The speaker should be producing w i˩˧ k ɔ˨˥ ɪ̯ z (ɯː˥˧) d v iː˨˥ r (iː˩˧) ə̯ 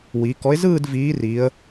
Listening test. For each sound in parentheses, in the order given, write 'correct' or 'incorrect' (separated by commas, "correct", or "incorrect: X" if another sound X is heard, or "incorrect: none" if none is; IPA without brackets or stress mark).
correct, correct